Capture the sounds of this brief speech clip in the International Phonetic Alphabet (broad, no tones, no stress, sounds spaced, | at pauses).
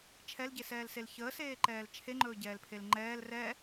t͡ʃʰ ɛ l ɟ e s ɛː l s e l ç əː s eː ǃ ɛː l t͡ʃʰ e ŋ͡ǃ ɵː ɟ ɛː l pʰ e l ŋ͡ǃ ɛː l r ɛ